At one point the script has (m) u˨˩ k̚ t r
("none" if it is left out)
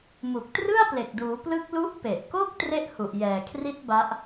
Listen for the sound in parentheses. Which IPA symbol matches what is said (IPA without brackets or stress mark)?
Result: m